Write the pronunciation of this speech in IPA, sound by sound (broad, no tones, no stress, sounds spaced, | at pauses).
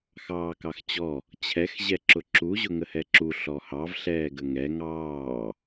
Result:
x ɑː k ɑ x t͡ɕ ɔ | t͡ɕʰ ɛ x ʑ ɛ ǁ ʊ ǁ u ʑ ʊ ŋ ə h ɛ ǁ u ɬ ɔ h ɑ v ɬ ɛː ɡ ə ŋ ɛ ŋ ɑː